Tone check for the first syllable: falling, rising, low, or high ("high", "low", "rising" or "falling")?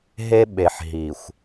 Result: high